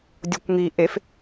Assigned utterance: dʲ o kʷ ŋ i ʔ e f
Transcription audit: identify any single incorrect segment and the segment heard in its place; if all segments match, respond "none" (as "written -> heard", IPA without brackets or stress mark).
none